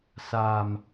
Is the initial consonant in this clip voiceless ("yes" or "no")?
yes